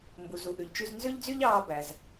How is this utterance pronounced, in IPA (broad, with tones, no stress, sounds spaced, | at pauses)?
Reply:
m b u˩ z u˩ ʔ ʉ˩ ʎ t͡ʃ y˧ z n z ø˥ ʎ d͡z y˥ ʎ ɑː˧ b æ˩ z